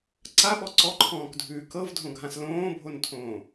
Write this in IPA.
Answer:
ǀaɓɔ ǀɔǃʰɔ̃ːkdʱʉː kɤvdʱõɡʱãs lõːbʱontʰõː

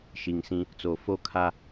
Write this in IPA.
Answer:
ʃi˨ŋsĩ˦ | t͡so˨fo˦ kʰa˦

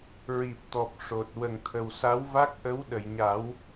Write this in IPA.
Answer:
ɹi˨˩p̚t̪ɔ˨˩p̚ ʂo˨˩t̚ wə˨˩ŋt̪ʰə˨˩wsa˧˥wva˦˥k̚ ʔə˧˥w ɗə˨˩˨jɲa˨˩˦w

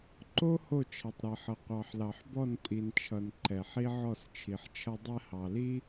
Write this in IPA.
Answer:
ǃo˦ ho˦˨t͡ʃʰʌ˨tˤɾɛ˨ħʌ˨ qʷɑ˨ħlɑ˨ħbɔ˦˨n pʼi˨nt͡ʃʰʌ˨n ǃɛ˨ħi˦ ʕɔ˦˨st͡ʃʰi˨ħt͡ʃʰʌ˦ dˤɛ˦hɑ˨li˦

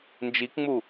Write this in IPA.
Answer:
nd͡ʒikŋ͡mu

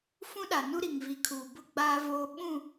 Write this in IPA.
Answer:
fũ˦ɗa˨nu˦ ɾi˨ŋvi˨kʰuː˨bʊ˦ ɡ͡baː˦voː˦ ɓũ˦˨

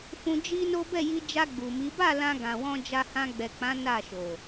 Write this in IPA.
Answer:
fũ˧d͡ʒi˦no˦ bɛ˦˨ji˧d͡ʒa˧ ɡ͡bu˨mi˨˦ ba˦˨ lã˧ɡã˨wɔ̃˧ d͡ʒa˧hã˧ɡ͡bɛ˨k͡pã˨˦ na˦˨ʃo˨

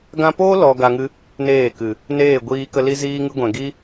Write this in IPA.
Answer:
ɡã˧po˦lɔ˨ ɡa˧ŋɨ˦ | neː˦˨kɨ˨ | neː˦˨ɡʷiː˧kə˧ li˦ziː˦ŋɨ˦ ɡʷɛ̃˨ɡi˦

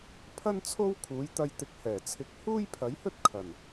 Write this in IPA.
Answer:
pʰɐ˥nt͡sʰo˥w kʰuː˨˥jt̪ɐ˧jt̪ɪ˨˥k̚ hɛː˨˩t͡sʰɪ˨˥k̚ huː˥jpʰɐ˨˥jhɵ˥t̚ kʰɐ˨˩n

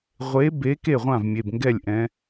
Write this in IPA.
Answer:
ʁʷe˨˦be˨˦ ke˥˩ʁʷã˥˩v mʲe˩˧˩bŋɡɛ˥˩lʲʔɛ̃˨˦

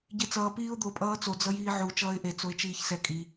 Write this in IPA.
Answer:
ɟet͡sʌː piːʊ̯d̪o pʼʌːt͡so d͡zʌjiːʕu t͡ʃʌːɪ̯ʔe t͡soɪ̯t͡ʃiːçsɛ kʼi

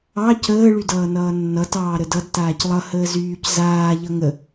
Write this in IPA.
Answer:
ɑ cəː ɭydʌːnʌːnːʌ tɑːɾədʌd taːclˠʌ həːzyːc zaː ʎʌŋə

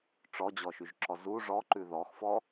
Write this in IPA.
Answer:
ʈ͡ʂɔd͡ʑɔʃyʒǁɔ zu ʐɔǃʉ ðɔxfɔ

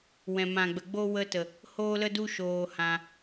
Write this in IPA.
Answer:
wɛ̃˨mã˨ɡ͡bə˨ɡ͡bo˦ wə˧tə˨ | hoː˦lə˦ du˦ ʃoː˧hã˧

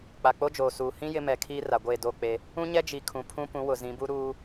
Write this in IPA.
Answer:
k͡pa˨k͡po˦d͡ʒoː˨suː˨ hĩ˦ jɪ˦mɛ˨kʰiː˦ ra˨ɡʷeː˦˨do˦˨k͡pe˦ | ũ˦ɲɛ˦d͡ʒi˨ kʰũ˨pʰũ˦ pũ˨˦wʊ˨zĩ˨˦bu˦ ɾuː˦

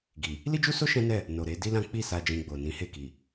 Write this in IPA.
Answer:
ɡi˨ | li˦d͡ʒu˦so˦ ʃɛ̃˦nɛ˦˨ | no˨ɾe˨˦ di˦lã˦ k͡pi˦˨sa˧ d͡ʒĩ˧ɡ͡bo˨ nĩ˨˦he˦˨ki˨

